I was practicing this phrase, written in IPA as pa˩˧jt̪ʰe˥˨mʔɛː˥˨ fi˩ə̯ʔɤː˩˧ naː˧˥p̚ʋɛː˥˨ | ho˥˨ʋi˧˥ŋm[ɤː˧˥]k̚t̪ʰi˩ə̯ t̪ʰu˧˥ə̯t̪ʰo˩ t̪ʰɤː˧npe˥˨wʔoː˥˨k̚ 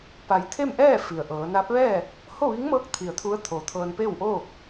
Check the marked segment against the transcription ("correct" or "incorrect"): correct